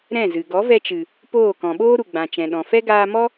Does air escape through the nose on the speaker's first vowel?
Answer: yes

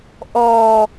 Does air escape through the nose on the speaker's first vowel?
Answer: no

